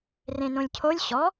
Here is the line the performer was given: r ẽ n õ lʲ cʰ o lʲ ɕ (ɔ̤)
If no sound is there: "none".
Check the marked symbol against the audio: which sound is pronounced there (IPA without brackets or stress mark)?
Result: ɔ